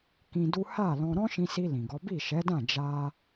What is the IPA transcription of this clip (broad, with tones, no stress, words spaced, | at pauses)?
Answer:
kĩ˧du˦ ha˦˨lɔ̃˧ ɾɔ̃˦ʃĩ˧si˧ lĩ˨ɡɔ˨˦ bi˦˨ʃɛ˨˦dã˦˨ d͡ʒa˧